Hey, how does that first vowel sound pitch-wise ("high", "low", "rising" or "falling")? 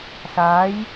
rising